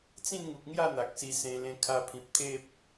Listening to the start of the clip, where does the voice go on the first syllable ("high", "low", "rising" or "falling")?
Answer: falling